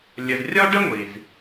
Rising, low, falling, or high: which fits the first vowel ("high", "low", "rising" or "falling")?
low